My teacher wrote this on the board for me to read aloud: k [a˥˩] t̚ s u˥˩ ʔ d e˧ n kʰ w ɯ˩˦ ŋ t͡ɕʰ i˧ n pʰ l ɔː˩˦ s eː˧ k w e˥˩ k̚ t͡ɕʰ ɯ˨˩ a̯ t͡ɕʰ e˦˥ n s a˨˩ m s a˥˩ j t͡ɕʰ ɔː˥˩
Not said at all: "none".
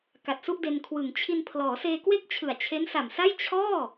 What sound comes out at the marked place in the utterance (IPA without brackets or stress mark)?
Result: a˨˩